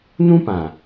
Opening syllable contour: high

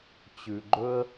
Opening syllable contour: low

